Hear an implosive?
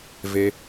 no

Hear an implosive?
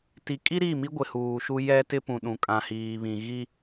yes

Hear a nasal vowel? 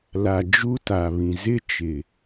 yes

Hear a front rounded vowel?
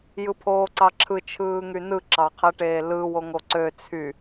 yes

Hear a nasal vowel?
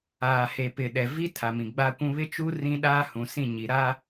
yes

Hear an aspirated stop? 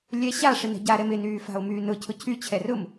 yes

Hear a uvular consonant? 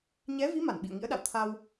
no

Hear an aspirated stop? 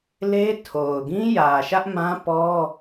yes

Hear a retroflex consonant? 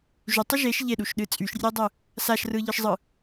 no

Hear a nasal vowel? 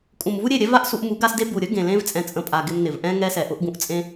yes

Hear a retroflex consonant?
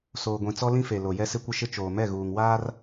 no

